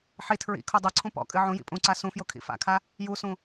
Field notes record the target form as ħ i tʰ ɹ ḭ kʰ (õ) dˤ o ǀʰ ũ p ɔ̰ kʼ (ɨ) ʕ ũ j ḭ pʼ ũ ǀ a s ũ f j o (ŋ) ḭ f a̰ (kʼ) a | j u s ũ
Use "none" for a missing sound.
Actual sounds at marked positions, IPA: o, ɨ, kʰ, kʰ

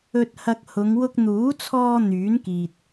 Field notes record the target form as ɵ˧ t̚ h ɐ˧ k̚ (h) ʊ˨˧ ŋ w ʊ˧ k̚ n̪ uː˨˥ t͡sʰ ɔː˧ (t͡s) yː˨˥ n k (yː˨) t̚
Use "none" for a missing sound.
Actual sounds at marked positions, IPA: h, n̪, iː˨

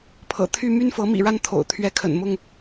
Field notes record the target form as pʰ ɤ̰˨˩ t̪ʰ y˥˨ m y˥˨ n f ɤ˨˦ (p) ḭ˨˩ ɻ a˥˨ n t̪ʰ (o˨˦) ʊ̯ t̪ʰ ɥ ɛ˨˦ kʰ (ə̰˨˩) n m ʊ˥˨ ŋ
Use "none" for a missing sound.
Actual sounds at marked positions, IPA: m, o̰˨˩, ə̰˨˩

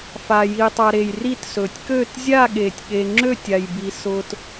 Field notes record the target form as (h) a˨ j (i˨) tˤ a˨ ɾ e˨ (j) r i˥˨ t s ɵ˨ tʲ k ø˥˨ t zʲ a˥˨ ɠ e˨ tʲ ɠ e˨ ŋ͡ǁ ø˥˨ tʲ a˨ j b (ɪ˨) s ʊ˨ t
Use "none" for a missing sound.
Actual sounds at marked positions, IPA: f, i˨, j, i˨

